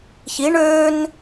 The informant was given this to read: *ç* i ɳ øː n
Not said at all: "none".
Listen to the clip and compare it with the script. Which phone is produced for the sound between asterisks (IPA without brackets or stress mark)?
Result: ç